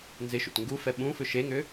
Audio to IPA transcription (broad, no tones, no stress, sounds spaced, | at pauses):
n z ɪ ʃ ṵ t ŋ ɡ u f ɛ ɓ ũ f ʏ ʃ e ŋ ʏ